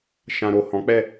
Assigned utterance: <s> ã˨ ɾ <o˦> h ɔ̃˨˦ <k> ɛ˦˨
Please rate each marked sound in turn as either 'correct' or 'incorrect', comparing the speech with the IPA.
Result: incorrect: ʃ, incorrect: o˨, incorrect: k͡p

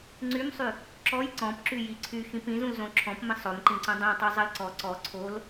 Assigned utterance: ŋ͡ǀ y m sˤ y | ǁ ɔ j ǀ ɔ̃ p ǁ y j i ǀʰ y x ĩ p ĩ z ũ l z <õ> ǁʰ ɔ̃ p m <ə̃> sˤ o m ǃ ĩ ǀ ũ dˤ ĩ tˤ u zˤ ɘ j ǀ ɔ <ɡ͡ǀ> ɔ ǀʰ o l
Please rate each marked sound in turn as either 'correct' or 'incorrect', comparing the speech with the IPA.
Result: correct, correct, incorrect: ǀ

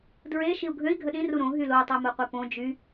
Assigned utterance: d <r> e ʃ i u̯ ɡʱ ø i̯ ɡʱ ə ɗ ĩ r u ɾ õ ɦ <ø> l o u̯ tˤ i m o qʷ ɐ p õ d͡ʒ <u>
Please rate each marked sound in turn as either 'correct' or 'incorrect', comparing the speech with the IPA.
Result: incorrect: ɹ, incorrect: y, incorrect: y

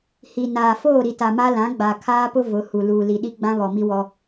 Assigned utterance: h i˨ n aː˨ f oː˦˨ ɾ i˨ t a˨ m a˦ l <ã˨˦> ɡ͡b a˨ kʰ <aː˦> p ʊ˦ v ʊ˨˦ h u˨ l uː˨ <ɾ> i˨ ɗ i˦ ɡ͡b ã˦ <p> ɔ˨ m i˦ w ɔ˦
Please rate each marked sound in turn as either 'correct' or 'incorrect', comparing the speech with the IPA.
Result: correct, correct, incorrect: l, incorrect: β

